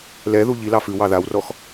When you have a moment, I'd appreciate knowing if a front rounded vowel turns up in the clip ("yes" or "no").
no